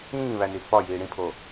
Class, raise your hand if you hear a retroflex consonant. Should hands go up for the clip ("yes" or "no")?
yes